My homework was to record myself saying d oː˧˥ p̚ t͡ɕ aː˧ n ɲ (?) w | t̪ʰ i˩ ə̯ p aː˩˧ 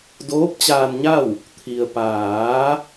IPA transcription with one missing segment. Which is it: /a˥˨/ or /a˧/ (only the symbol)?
a˥˨